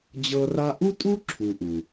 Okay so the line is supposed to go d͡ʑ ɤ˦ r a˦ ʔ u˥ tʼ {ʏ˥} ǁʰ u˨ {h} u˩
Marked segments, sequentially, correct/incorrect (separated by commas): incorrect, incorrect